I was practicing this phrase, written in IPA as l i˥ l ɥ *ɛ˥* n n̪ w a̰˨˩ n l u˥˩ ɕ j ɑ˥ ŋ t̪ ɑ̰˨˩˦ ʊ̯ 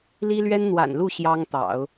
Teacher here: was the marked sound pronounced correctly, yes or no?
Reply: yes